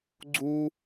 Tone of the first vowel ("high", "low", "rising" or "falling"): high